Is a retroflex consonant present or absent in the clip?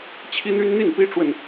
present